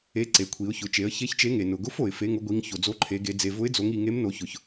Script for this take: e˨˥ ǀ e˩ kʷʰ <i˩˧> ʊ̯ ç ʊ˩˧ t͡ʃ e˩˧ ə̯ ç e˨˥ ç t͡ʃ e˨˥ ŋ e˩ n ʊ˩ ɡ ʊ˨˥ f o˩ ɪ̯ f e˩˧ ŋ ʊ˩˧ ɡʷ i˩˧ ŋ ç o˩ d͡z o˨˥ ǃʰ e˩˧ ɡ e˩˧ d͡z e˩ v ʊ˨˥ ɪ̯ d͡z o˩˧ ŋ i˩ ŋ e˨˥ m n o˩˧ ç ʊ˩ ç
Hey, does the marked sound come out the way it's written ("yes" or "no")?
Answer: yes